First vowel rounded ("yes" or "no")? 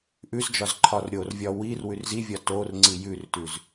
yes